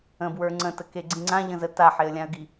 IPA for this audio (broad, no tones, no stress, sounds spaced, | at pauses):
ə̃ b w ə˞ ŋ͡ǀ ə̃ t ə k e ɡ͡ǀ ĩ ŋ͡ǀ ã ʎ ə̃ z ə t a ħ e ə̯ lʲ ã ə̯ ɡ i